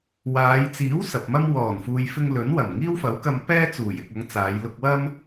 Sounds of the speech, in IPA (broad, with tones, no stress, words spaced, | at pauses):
waː˨˧jt͡siː˨˥w sɐ˨p̚mɐ˥m wɔː˨˩nfuː˨jfɪ˧ŋ lɵ˨˥nwɐ˨˩m ŋiː˥wfɐ˨˥wkɐ˧m pɛː˥t͡suː˨˩j ɪ˨k̚ɐ˨˧ŋ t͡saː˨˧jlʊ˧k̚wɐ˥m